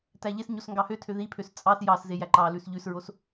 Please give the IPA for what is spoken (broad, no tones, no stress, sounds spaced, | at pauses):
t æ ʎ e s ɲ o s ŋ ɡ ɑ h ø tʰ ø ð i pʰ ø s t͡sʼ ɑ s j ɑ s z e j æ ǃ ɑ l ʉ s ʎ ʉ s ɹ o s